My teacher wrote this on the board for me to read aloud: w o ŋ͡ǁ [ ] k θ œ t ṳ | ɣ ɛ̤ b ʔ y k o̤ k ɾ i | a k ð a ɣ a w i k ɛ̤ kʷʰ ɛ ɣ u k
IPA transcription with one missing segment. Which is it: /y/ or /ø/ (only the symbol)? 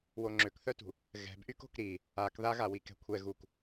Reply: ø